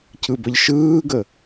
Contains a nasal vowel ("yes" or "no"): no